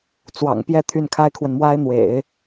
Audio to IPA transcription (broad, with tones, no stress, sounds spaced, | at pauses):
t͡s w ɑ̰˨˩ ŋ p j ɛ˥˧ t̪ʰ y˥˩ n kʰ a˥ ɪ̯ kʰ w ə˨ n m w a˥ ɪ̯ n̪ w ḛ˨˩˦ ɪ̯